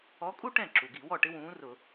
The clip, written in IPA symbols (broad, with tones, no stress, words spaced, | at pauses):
ɔ˨˥kʼu˥ ʈɛ̃˥˩ǁu˩ɡi˧˩˧wɔ˥˩ ʈɪ˥wũː˨˥rʊ˧˩˧